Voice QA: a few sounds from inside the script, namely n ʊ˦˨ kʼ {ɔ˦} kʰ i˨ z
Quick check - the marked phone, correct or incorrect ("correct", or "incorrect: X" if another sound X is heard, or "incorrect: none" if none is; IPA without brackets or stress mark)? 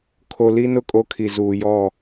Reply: incorrect: o˦